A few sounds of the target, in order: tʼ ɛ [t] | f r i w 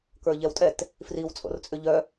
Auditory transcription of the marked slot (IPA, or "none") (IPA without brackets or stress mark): t